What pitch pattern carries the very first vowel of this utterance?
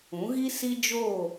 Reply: rising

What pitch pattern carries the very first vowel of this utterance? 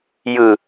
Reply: low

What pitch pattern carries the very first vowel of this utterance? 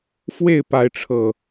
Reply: falling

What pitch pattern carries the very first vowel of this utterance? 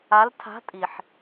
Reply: rising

